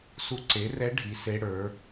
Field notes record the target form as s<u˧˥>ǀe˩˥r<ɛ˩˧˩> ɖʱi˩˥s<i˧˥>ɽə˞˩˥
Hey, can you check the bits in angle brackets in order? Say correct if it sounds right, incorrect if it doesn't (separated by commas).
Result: correct, incorrect, incorrect